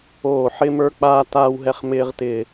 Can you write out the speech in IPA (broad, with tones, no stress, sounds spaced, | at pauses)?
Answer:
oː˧˩ ħ ɪ˦ m ə˞˦ k͡p aː˦ t aː˦ w ɦ ɛ˦ χ m ɪː˦ ʁ t ɪː˧˩